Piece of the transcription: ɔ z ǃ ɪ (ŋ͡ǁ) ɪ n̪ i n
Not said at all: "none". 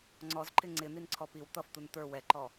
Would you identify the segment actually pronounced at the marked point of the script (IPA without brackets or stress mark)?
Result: ŋ͡ǀ